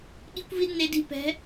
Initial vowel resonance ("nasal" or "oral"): oral